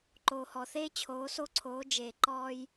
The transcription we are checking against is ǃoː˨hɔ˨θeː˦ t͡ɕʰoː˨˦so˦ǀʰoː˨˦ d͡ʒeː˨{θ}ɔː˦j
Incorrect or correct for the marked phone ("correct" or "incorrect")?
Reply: incorrect